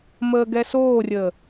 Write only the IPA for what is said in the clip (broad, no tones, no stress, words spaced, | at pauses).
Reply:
məːɡɛsoːrʲəː